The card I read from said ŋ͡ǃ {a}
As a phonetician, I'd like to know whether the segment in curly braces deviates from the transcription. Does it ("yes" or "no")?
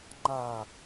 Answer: no